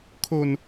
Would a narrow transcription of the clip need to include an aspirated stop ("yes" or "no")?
yes